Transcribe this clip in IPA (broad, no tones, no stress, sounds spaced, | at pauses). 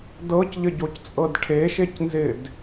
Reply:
d ɤ c ʎ ɘ ɟ o c t͡sʼ ɤ d ʈʰ e ʃ e c n z ɪ d